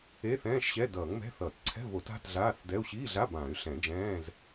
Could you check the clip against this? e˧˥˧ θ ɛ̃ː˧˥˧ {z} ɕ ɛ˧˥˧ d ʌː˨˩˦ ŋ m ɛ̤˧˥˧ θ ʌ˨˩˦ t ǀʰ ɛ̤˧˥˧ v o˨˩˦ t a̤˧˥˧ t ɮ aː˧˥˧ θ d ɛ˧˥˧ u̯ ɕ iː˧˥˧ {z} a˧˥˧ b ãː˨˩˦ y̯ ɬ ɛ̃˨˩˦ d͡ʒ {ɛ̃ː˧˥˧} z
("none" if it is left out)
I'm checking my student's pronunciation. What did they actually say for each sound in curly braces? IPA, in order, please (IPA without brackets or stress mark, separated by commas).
ʃ, ɮ, ɛ̃ː˧˥˧